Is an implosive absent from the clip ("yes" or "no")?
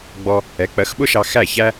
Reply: no